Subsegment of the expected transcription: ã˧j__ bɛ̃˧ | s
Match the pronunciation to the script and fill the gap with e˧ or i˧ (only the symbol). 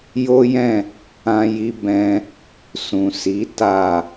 i˧